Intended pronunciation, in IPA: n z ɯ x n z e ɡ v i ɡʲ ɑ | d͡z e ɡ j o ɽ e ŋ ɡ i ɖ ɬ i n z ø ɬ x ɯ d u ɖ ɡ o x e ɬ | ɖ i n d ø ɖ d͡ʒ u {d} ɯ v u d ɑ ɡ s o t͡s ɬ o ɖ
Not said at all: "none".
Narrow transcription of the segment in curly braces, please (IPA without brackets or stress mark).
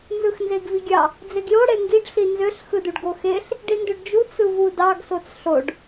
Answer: t͡s